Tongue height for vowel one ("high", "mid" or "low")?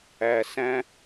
low